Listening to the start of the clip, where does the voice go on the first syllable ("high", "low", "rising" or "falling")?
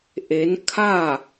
rising